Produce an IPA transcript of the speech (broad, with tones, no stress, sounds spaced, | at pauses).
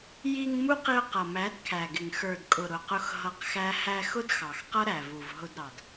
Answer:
j i˧ ŋ m u˦ q i˧ ʊ̯ q ʌ˨ m æ˨˦ d kʰ æ˨ ɡ ɪ˨ ŋ x ə˞˨ d kʼ ʊ˨ ɾ ʊ˨ q ʊ˧ x ɦ ʌ˧ q x æ˦ h æ˧ x ʊ˦ d x ɑ˨ x q ʌ˦ ɾ æ˨ v u˨ v ɦ ʊ˧ d ɾ ɑ˨ d